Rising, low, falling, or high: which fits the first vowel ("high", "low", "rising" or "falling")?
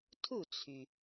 falling